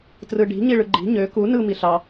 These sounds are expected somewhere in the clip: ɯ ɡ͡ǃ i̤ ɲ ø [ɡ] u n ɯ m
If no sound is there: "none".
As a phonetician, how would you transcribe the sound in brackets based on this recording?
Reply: k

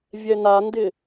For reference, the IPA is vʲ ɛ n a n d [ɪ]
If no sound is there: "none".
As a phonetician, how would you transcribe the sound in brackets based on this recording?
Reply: ɪ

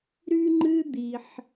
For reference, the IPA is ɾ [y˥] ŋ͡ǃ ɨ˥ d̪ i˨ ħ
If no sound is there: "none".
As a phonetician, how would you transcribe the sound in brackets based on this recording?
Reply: y˥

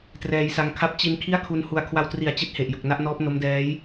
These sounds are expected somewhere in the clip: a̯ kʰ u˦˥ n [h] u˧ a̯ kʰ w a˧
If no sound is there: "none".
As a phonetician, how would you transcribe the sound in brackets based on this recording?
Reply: h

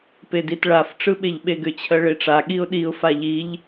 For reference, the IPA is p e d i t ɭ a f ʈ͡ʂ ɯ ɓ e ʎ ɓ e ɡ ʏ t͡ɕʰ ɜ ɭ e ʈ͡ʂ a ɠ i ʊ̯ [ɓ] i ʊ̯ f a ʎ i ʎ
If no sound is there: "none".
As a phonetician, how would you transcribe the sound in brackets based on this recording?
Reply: ɗ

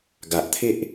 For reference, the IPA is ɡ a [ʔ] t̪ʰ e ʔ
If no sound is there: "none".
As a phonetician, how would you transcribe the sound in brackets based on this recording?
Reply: ʔ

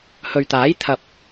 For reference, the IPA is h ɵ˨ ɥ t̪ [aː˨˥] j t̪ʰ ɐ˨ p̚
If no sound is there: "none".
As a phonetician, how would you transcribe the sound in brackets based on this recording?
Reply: aː˨˥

